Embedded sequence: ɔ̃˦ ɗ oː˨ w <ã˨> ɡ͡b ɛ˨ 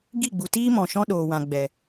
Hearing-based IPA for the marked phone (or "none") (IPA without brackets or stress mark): ã˨